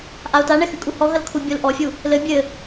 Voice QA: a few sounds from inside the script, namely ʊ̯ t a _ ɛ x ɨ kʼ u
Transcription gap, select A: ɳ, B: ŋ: A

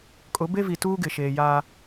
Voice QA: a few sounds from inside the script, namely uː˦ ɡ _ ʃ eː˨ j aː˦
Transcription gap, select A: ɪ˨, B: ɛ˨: A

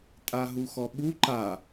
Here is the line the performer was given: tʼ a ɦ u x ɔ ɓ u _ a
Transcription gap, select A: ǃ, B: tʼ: A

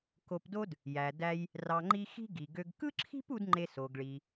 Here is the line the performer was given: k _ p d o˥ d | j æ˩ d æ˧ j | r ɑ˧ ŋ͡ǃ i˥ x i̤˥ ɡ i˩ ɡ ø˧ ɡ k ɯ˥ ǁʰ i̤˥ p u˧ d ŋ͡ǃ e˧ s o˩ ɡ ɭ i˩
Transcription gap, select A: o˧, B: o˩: A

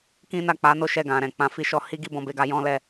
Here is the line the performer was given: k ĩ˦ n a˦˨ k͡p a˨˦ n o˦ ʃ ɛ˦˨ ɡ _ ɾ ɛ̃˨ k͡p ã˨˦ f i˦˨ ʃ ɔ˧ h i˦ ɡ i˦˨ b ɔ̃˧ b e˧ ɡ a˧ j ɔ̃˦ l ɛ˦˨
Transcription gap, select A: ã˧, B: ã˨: B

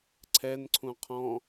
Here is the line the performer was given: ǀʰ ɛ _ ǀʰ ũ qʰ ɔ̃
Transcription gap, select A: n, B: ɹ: A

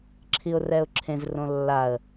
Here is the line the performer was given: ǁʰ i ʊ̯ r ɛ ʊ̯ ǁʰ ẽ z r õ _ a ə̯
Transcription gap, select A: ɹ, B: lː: B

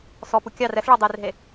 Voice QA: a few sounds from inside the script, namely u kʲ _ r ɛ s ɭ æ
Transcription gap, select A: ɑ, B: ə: A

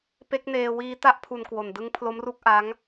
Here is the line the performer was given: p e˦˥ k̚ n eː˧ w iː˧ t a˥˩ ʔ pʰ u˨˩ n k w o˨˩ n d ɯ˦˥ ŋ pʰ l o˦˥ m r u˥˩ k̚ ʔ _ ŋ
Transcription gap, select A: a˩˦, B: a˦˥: B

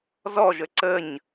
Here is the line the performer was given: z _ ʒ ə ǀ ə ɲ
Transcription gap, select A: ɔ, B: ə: A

